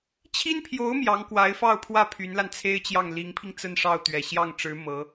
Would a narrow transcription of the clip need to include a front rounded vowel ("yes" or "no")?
yes